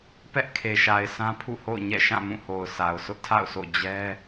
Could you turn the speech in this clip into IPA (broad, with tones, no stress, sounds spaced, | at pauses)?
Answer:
p ɛ˦ ʔ kʰ e˨ ʃ a˨ ɪ̯ s ã˦ pʰ ṵ˦˨ h o̰˦˨ ʊ̯ ɲ ɛ̰˦˨ ʃ ã˦˨ m ũ˦˨ h o˨ ʊ̯ s a˨ ʊ̯ sʰ ʊ˦ ʔ tʰ a̰˦˨ ʊ̯ s o̰˦˨ d͡ʑ ɛ˦